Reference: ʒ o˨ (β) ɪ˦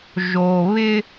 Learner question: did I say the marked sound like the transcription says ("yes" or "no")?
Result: yes